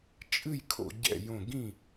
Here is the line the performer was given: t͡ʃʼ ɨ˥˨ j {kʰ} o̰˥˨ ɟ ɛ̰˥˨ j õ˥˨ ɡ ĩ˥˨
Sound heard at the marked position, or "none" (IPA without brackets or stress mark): kʰ